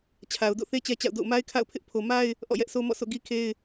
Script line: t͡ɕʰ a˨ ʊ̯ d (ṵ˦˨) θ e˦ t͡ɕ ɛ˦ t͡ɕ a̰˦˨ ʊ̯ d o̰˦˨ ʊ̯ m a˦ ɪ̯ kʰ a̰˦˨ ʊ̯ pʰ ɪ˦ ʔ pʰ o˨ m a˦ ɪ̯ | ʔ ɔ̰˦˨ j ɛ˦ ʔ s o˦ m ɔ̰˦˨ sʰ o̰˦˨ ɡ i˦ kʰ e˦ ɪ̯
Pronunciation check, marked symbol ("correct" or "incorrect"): incorrect